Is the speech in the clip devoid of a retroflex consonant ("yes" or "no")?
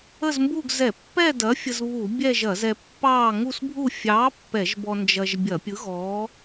yes